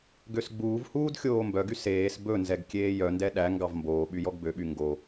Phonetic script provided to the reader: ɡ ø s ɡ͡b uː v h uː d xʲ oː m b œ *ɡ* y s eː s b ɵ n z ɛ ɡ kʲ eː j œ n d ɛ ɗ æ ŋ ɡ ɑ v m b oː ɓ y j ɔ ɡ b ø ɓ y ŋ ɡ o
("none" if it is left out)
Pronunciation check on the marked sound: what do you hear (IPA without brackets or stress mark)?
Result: ɡ